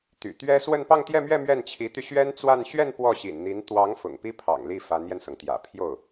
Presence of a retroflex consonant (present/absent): absent